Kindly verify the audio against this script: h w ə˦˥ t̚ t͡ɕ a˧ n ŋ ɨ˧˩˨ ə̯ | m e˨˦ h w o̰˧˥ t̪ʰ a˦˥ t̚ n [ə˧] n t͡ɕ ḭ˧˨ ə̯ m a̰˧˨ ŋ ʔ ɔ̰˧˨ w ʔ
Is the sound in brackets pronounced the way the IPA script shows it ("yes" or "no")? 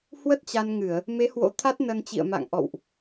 yes